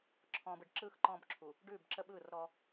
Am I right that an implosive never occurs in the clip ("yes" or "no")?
no